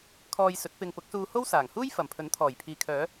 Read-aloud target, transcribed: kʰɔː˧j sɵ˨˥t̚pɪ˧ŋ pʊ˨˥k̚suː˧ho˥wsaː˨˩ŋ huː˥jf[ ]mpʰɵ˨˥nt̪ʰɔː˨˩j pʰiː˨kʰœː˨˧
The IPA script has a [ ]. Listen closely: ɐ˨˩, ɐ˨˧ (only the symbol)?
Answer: ɐ˨˩